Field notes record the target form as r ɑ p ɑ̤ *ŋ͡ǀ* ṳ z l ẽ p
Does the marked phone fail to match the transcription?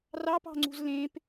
no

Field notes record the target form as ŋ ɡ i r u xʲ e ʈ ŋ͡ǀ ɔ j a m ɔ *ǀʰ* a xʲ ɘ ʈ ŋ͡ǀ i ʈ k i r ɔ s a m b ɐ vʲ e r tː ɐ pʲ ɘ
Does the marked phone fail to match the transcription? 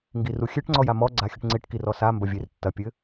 yes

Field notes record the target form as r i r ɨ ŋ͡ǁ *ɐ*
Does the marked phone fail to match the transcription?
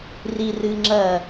no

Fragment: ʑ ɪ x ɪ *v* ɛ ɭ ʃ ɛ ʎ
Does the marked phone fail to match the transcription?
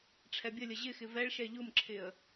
no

